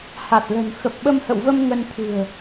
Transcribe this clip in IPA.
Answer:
h a˨˩ t̚ l ə̤˨˩ n x ə˨˩ p̚ ɓ ə˧ m h ə̰˧˨ w v ə˧ m ŋ ə˧ n t̪ʰ ɨ̤˨˩ ə̯

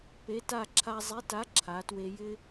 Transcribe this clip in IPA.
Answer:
p e˨˥ t a˥˧ ǁʰ a˧ zˤ i˨˥ t a˨˥ ǁʰ a˩˧ t w e˧ j ɪ˥

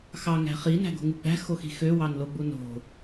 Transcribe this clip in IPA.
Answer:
x ɑ ŋ æ̤ χ i n æ̤ ɡ o̤ ŋ ɯ ɡ͡b æ̤ x o x i̤ x ø w ɑ n l o ɡ͡b u n o̤

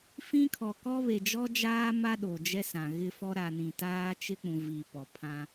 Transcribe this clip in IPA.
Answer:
f ĩ˦ kʰ ɔ˨ k ɔ˦ β e˨ d͡ʒ ɔ˦ d͡ʒ aː˦ m a˦ ɗ o˨ d͡ʒ ɛ˦ s ã˨ ɣ ɪ˦ f ɔ˦ ɾ a˨ n ĩ˨ t aː˦ t͡ʃ ɪ˦ k͡p ũ˨ v i˨ p ɔ˨ pʰ ã˦

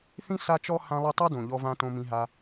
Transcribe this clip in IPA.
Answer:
θ ĩ˦ s a˦ t͡ʃ ɔ˦ h ã˧ lˠ i˧ tˤ a˦ d õ˨ ʎ ɔ˧ v ã˧ t õ˧ m ĩ˧ ɦ a˧

